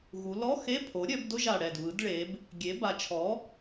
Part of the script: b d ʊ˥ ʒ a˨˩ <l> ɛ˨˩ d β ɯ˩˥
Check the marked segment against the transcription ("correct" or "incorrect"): incorrect